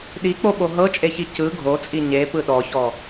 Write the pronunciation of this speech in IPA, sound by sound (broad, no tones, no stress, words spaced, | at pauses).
ɗik͡poɓo ɦɤt͡ʃʼeçi cɯ ɡʱot͡sʼi ɲepɯ ɗɔçɔ